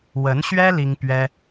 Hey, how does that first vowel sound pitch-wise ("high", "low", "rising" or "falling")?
rising